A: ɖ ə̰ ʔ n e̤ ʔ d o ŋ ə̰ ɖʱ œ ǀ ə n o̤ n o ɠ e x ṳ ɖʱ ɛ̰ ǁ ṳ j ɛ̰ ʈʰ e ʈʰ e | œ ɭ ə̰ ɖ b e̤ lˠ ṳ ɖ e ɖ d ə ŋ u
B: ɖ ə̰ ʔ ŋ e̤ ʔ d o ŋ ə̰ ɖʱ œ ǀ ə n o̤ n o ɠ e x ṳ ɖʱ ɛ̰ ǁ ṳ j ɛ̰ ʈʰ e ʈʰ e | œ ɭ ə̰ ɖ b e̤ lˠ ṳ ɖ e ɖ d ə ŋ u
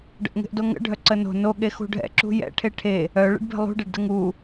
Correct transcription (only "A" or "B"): B